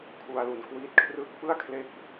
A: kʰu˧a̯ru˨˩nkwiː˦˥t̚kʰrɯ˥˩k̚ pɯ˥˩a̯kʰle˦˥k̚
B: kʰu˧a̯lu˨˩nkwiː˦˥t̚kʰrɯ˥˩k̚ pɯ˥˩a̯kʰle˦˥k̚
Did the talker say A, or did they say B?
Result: B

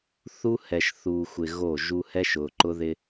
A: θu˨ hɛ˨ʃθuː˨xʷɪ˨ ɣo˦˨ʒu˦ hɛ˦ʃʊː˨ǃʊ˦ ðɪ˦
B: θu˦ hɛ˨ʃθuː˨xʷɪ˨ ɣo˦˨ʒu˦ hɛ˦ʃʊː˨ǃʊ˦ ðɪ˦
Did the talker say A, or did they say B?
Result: B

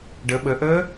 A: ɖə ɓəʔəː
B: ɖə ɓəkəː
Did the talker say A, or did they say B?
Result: A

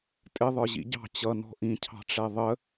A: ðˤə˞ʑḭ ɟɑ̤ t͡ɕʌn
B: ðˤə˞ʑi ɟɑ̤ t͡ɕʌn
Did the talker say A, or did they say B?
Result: A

